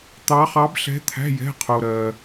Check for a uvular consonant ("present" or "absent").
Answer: present